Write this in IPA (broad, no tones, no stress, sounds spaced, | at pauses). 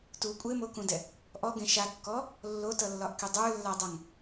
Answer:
t u kʷʼ e m o k ũ d ɛ | ʔ ɔ ɡ ẽ ʃ a kː ɔ | lː o t ʌ lː ɒ ʔ k e dˤ ə˞ lː a dˤ ʌ ŋ